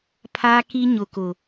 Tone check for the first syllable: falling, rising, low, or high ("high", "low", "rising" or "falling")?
high